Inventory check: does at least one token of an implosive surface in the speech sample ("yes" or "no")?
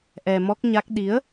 yes